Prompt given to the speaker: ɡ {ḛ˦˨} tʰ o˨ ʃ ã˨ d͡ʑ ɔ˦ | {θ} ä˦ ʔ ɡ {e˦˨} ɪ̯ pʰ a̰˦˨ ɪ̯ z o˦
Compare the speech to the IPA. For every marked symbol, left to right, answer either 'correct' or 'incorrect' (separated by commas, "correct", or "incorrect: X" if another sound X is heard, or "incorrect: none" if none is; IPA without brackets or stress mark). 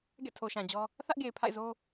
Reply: incorrect: ɛ̰˦˨, correct, incorrect: e˨